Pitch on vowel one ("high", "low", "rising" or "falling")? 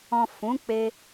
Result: low